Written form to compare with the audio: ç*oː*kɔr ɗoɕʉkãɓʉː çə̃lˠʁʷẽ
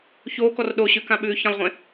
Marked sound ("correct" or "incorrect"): correct